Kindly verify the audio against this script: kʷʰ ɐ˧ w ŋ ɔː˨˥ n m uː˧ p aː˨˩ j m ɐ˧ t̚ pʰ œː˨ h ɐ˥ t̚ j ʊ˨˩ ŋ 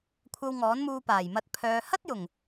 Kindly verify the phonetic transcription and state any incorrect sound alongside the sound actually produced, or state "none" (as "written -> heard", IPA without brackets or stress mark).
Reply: none